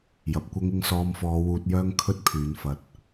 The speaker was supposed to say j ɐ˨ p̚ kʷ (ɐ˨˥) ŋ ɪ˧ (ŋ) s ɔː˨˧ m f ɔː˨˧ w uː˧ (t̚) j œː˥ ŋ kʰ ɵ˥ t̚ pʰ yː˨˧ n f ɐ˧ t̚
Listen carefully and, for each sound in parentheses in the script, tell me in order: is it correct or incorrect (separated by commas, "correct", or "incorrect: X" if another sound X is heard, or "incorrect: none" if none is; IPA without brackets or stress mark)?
incorrect: ɐ˥, correct, correct